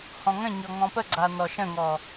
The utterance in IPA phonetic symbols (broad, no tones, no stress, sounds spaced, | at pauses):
h ɔ̃ ŋ ə̃ ɲ ɔ ŋ ɔ̃ p ə ɡ͡ǀ a n ɔ ʃ ə̃ ŋ ɔ